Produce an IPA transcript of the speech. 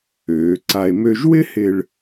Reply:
øː˩˧ ǀ a˧ e̯ m ø˧ ʒ w ɪ˥ h ɪ˧ ɭ

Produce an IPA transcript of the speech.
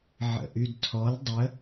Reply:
ʕ ə̰ ʔ y d tʰ ɔ l dˤ ə

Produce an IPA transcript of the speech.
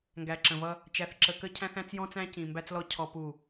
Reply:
ŋ ɡ æ˨ ǁ ə̃˨ v ʌ˦ | t͡ʃ æ˨ θ ǁ ə˨ k ə˦ cʰ æ̃˦ θ æ̃˦ t͡s j ɔ̃˦ t͡s æ̃˦ c ĩ˨ m b æ˦ t͡s l ɔ˦ cʰ ɔ˦ p u˦˨

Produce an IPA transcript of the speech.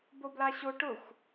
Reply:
b o b l a ɕ o ʈ ʊ xʷ

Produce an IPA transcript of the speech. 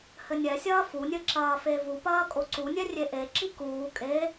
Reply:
h ɘ nʲ ɛ sʲ ɐː f u nʲ ɘ ǁ ɐː f e v u p ɐː kʼ o ǀ u nʲ ɛ rʲ e ʔ e ǁ i k uː kʼ e

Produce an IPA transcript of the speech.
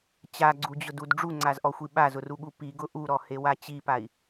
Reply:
t͡ɕ a ɡ͡ǀ u d͡ʑ ʊ d u d ɖ͡ʐ u ŋ͡ǀ a z ʔ ɔ xʷ i ɓ a z ʊ r u ɠ u p i ɡ ʊ ʔ u ɾ ɔ h e w a t͡ɕ i p a i̯

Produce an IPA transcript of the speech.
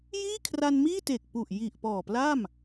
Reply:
j iː˥˩ kʰ r a˧ n m iː˥˩ t e˨˩ k̚ p u˨˩ ʔ j i˨˩ ʔ p ɔː˨˩ p l a˥˩ m

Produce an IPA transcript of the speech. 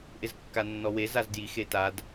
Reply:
ʔ ɪ z kː a nː ɔ w e z a z d j i x e t a d

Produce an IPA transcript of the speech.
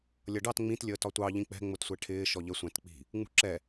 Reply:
lʲ ʌ ɖ ɑ t ŋ͡m ĩ t lʲ əː t ɒ tʷ ɑ ʎ ĩ k͡p ɛ̤ ŋ͡m ʊ t sʷ ɛ ʈʰ ɪː ʃ ɔ ʎ ə sʷ æ̃ t k͡p i̤ | ŋ͡m ṳ ǁ ɛ

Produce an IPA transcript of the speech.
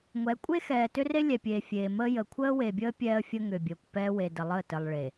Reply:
ŋʷ ɛ˨˦ kʷʼ e˦ x ɛː˨ t ʏ˦ r e˦ lʲ ɛ˨ pʲ eː˨ fʲ eː˨ m əː˦ j ə˨ kʷʰ əː˦ w e˨ bʲ əː˦ pʲ ɛː˦ ə̯ fʲ ə˦ ŋ ʏ˨ bʲ əː˨ kʷ p ɛː˦ w e˨ d ə˨ lˠ əː˦˨ t ə˨ lˠ ɭ e˨

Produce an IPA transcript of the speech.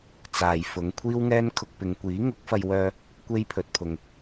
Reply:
t͡s aː˨ j f ʊ˨˧ ŋ kʷʰ iː˥ w ŋ ɛː˥ n kʰ ʊ˧ k̚ p ɪ˨˧ ŋ kʷ iː˨˥ ŋ ʊ˨˥ k̚ f ɐ˧ j w œː˧ | kʷ e˥ j pʰ ɵ˨ t̚ pʰ ʊ˨ ŋ

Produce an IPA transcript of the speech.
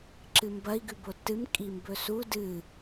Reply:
ǁ ɨ m b ɐ i̯ ɡ ʉ b o tː ɨ m kʼ i m b ɵ s u d ɨ

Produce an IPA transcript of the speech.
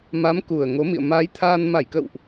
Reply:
m a˨˦ m k u˨˩ ə̯ ŋ o˨˦ m ḭ˧˨ ə̯ m aː˨˦ j t̪ʰ aː˧ n m a˧˩ j k ə̰˧˨ w ʔ

